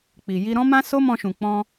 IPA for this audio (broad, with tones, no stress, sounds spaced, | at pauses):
k͡p i˨ j i˧ ɾ ɔ̃˦ m ã˦ s o˦ m ɔ̃˧ ʃ ũ˨ k͡p ɔ̃˧